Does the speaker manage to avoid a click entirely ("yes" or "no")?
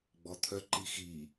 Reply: no